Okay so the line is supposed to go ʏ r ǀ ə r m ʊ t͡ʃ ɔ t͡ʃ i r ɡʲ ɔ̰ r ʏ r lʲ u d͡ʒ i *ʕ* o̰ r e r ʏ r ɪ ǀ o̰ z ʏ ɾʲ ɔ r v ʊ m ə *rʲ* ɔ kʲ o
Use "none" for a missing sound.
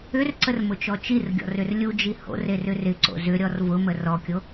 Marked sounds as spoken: h, r

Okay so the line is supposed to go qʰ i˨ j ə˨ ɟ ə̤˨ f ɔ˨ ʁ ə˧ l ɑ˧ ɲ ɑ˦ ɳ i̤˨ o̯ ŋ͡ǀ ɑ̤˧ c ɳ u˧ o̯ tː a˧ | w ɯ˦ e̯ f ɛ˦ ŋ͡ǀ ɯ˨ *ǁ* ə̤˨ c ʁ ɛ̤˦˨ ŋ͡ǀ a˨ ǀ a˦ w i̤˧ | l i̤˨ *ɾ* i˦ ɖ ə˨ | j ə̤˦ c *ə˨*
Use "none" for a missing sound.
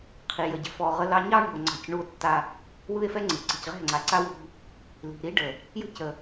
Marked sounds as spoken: ǀ, ɾ, ə˨

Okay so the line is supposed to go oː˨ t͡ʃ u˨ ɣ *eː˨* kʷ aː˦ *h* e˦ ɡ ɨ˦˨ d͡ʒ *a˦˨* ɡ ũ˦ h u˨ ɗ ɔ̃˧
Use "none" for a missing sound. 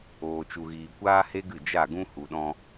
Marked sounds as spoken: iː˨, h, a˦˨

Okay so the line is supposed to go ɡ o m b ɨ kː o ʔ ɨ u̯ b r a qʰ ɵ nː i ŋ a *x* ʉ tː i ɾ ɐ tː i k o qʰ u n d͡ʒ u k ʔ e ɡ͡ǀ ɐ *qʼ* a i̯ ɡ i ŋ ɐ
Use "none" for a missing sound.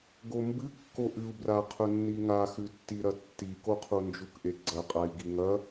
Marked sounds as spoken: x, qʼ

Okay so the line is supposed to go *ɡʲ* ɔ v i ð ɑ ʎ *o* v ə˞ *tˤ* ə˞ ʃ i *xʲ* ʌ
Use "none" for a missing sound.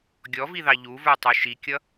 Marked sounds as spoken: ɡʲ, u, tˤ, kʲ

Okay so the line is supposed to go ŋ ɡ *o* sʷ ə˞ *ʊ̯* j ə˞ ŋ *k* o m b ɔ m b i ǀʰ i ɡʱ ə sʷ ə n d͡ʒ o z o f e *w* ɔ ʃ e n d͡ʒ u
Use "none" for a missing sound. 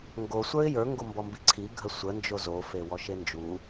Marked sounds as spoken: o, ɪ̯, ɡ, w

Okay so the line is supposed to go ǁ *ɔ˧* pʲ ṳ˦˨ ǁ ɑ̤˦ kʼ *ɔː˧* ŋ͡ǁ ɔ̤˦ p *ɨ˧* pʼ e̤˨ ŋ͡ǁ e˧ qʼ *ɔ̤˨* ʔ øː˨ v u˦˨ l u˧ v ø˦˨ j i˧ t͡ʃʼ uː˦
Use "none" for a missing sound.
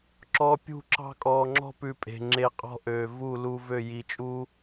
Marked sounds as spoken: ɔ˧, ɔː˧, ʉ˧, ɔ̤˦

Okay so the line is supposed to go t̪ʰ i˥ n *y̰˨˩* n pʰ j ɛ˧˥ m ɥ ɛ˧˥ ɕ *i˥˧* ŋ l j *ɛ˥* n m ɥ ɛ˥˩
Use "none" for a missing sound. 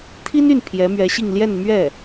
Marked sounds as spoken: y˥˩, i˥˧, ɛ˥˧

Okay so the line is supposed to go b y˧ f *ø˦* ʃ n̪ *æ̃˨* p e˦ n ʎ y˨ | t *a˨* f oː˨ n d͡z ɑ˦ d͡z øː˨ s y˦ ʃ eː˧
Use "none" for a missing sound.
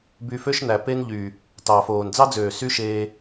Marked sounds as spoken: ø˦, æ˨, ɑ˨

